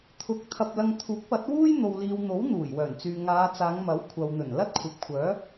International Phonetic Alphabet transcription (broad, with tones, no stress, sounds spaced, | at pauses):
t̪ʰ ʊ˨˥ k̚ t̪ʰ ɐ˧ p̚ l ɐ˧ ŋ t̪ʰ uː˨˥ k̚ p ɐ˨˥ t̚ w uː˥ j n̪ o˨ w l iː˨ w n̪ o˨˥ w n̪ uː˨˩ j w œː˨˩ n t͡s yː˨ ŋ aː˨˧ t͡s aː˨˧ ŋ m ɐ˨˥ w kʷʰ ɐ˨ w n̪ ɵ˨˩ n l ɐ˥ t̚ kʷʰ ɐ˨ p̚ kʷʰ œː˨˥